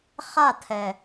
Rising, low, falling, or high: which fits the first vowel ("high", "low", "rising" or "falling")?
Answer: falling